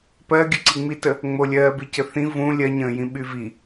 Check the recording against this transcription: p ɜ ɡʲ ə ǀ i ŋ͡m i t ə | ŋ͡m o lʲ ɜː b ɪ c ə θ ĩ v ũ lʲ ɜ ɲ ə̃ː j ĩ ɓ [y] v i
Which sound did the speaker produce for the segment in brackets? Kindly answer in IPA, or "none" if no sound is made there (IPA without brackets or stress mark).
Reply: y